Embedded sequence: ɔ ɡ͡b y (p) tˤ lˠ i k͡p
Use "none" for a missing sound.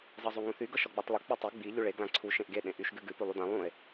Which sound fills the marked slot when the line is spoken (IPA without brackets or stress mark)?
none